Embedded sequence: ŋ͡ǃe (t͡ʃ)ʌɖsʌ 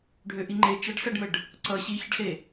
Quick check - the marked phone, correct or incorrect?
correct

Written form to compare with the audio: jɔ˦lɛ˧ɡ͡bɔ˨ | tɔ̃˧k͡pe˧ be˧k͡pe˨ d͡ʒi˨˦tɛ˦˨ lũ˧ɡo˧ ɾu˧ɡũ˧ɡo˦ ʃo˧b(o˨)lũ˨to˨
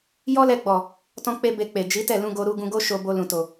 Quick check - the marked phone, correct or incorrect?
incorrect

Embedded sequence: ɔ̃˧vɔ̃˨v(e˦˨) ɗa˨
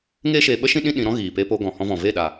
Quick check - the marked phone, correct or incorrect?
correct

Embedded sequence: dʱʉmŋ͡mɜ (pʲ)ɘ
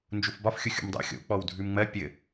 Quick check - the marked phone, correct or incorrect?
correct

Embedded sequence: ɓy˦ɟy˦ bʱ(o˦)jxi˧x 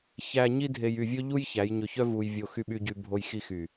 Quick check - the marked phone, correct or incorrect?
incorrect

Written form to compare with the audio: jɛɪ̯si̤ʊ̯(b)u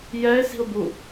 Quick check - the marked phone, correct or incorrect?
correct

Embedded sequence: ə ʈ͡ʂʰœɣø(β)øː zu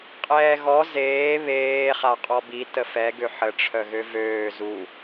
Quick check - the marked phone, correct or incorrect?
incorrect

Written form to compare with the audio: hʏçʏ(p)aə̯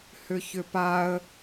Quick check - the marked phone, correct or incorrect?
correct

